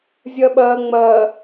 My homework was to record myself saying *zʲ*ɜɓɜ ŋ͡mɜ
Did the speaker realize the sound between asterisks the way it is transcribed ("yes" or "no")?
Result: yes